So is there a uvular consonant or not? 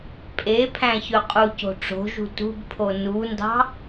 yes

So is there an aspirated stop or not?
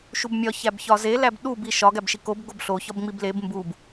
no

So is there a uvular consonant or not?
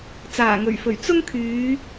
no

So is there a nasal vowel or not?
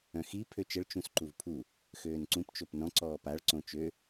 yes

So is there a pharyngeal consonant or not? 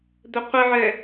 yes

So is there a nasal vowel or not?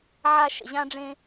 yes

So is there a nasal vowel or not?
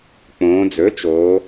yes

